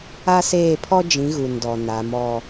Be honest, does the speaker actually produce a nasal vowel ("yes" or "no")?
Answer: yes